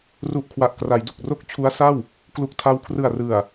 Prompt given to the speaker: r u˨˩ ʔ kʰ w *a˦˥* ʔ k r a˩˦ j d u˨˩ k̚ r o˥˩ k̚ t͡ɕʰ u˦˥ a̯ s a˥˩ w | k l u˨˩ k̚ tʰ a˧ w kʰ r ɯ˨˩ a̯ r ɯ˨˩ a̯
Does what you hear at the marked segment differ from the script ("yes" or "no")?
yes